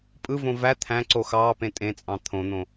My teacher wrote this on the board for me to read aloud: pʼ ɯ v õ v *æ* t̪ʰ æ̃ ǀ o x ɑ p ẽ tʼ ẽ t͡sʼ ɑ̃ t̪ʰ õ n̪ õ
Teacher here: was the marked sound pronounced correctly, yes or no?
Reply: yes